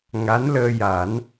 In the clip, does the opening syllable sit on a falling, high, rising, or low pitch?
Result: rising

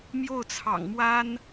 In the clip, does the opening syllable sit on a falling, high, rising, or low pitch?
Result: falling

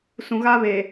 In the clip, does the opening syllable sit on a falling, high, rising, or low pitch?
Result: low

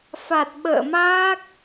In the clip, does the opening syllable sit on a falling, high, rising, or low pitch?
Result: low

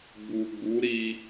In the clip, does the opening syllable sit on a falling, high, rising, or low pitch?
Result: low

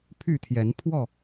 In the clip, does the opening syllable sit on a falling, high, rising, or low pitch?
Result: falling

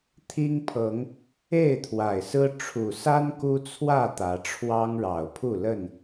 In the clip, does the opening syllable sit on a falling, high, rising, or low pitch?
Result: high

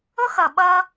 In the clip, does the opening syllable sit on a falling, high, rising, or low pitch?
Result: high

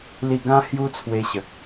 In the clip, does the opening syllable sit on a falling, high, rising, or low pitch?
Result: falling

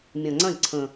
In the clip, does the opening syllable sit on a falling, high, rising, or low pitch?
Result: low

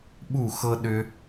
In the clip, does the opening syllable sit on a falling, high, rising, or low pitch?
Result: falling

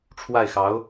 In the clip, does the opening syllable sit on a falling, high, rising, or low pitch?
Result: falling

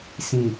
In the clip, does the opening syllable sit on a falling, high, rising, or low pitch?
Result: low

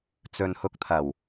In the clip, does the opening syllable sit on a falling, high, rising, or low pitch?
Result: low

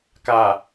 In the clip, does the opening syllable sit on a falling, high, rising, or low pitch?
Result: low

